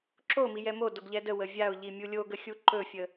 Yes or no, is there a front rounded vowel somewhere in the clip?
no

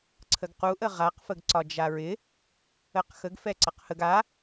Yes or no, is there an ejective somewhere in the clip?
no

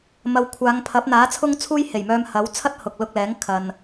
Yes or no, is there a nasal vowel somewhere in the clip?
no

